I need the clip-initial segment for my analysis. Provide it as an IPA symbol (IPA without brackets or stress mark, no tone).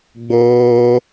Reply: ɡ͡b